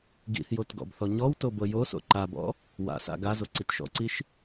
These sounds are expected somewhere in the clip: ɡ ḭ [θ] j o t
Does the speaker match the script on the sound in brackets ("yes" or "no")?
yes